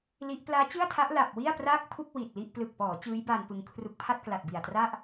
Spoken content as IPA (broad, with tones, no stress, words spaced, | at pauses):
li˦˥ʔ plaː˦˥t͡ɕɯ˥˩a̯tʰa˦˥ʔ la˨˩p̚wi˥˩a̯praː˥˩k̚pʰu˥˩k̚ wi˨˩t̚ li˥˩ʔ plɯ˨˩k̚pɔː˩˦ t͡ɕɯː˦˥jbaː˧n pɯ˧ŋkʰru˦˥k̚ pʰa˥˩t̚kla˨˩t̚bi˨˩a̯tra˥˩ʔ